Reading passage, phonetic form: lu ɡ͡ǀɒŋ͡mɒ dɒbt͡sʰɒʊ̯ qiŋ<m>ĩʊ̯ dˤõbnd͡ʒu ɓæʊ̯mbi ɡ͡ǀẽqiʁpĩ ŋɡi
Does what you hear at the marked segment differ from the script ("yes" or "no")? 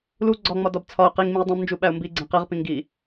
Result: no